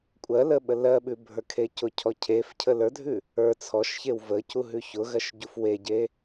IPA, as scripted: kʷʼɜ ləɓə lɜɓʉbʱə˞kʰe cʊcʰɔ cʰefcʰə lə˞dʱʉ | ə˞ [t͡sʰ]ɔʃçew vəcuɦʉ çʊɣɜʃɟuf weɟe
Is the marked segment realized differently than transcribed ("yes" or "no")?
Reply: no